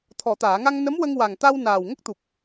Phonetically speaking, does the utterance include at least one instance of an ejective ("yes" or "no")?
no